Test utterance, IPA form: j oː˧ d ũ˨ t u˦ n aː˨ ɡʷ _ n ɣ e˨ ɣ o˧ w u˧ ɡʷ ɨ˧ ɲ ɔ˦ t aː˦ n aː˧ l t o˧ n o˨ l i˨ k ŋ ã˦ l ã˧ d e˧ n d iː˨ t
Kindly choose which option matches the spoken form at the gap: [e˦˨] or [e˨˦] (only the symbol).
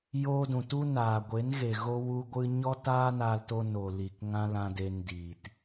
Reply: e˨˦